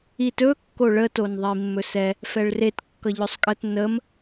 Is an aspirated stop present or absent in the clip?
absent